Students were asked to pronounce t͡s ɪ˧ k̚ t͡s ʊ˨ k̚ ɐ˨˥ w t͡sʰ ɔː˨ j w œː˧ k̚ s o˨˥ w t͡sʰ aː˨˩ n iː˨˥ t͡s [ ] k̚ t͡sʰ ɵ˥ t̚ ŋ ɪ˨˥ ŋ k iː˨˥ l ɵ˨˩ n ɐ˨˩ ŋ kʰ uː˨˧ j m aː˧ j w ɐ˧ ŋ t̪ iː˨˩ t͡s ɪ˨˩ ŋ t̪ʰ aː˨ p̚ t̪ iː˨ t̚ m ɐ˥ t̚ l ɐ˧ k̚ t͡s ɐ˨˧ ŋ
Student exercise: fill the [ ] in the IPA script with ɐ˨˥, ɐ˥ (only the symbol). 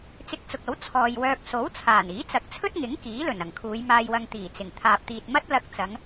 ɐ˨˥